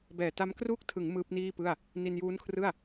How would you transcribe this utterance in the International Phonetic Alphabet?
b ɛː˨˩ t a˦˥ m k r uː˥˩ k̚ tʰ ɯ˩˦ ŋ m ɯː˦˥ p̚ n iː˥˩ p ɯ˥˩ a̯ | n i˧ n j uː˦˥ n kʰ r ɯ˥˩ a̯

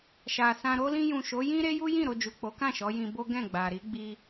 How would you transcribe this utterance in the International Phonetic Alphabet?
ʃ a˨ s ã˧ ɾ o˧ l ĩ˧ j ũ˨ ʃ o˨˦ j ĩ˦ ɾ e˦ j u˦ j ĩ˦˨ ɾ o˧ d͡ʒ u˨ k͡p o˨˦ k ã˦˨ ʃ ɔ˨˦ j ĩ˧ b o˦ ɡ ɛ̃˦˨ ɡ͡b a˨ ɾ i˨˦ ɡ͡b i˧

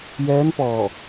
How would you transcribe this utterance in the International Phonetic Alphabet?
j ɛː˧˥ n p ɔː˧˩

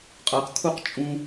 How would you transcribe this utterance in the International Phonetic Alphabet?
qʼ ɤ q kʰ u q t͡ʃʼ ũ

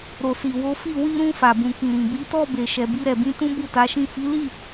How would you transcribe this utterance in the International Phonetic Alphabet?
ɾ o˨ s i˨ w o˨˦ f i˦˨ w i˧ ɾ ũ˧ f a˨ b ũ˨ k ĩ˨ ɾ ĩ˨ b i˨˦ t ɔ˦˨ b e˨ ʃ ɛ˨ b i˧ ɾ ɛ˨ b ĩ˧ t ũ˦ b u˦˨ t a˨˦ ʃ ĩ˦˨ f i˨˦ l i˦˨

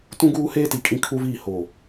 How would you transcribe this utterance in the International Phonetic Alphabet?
t ũ˦ ɡ uː˦ h eː˦ t i˨ kʼ ĩ˦ kʰ u˦ v iː˦˨ h oː˨

